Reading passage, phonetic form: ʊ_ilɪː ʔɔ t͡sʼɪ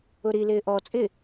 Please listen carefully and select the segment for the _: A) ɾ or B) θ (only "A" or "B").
A